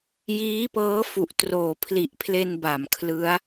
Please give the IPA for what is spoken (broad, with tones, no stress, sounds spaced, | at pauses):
j iː˦˥ p ɤː˦˥ f u˨˩ ʔ t r oː˩˦ pʰ l i˨˩ ʔ pʰ l e˧ n b a˨˩ m kʰ l ɯ˦˥ a̯